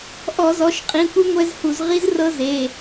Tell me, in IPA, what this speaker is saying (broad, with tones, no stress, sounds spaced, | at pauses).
ʔ ɔ˧˩˧ z ɔ˩˧˩ ʃ qʼ ĩ˩˧˩ kʷ i˦˥ ŋʷ ɛ˦˥ z h u˧˩˧ z ʁ i˦˥ z r ɤ˦˥ z e˩˧˩